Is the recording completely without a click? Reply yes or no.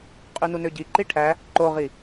no